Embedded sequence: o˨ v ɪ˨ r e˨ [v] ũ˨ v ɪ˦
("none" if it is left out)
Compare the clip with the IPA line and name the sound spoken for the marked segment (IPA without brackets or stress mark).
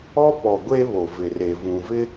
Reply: v